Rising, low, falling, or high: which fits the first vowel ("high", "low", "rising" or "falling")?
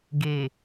low